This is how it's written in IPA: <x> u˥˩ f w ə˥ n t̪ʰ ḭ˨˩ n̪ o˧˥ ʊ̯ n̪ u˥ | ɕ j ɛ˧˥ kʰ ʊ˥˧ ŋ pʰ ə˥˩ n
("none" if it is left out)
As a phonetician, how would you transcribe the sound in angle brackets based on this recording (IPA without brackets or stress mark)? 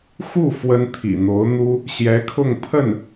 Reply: x